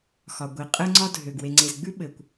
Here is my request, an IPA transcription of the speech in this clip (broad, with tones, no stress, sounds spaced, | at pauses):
x ɒ˨ ɡʷ i˨ qʼ ɘ˦ ŋ͡ǀ ɒ˦ dʱ ø˨ ɡ w e˨ ŋ͡ǀ e˨ z ɡ͡b ʉ˦ ɓ ɘ˨ kʷ